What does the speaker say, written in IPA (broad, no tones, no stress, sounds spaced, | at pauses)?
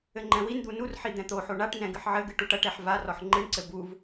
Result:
ɘ ŋ͡ǃ ɛ̃ w i n d̪ u n u r ħ i d̪ ɛ̃ t̪ o ħ o ɳ a ʈ n ɛ̃ ɡ ɨ ħ ʕ ɘ ɡ ɨ ʈ u ʈ ɐ ʈ ɛ ħ v a r ɔ ħ ŋ͡ǃ ɨ ɳ ǀ ɘ b u v